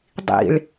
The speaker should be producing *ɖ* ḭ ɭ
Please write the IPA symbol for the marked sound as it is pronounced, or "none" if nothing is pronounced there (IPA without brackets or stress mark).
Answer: dˤ